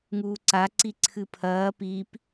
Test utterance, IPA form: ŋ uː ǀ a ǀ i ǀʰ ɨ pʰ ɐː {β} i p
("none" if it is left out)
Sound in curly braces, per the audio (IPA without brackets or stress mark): p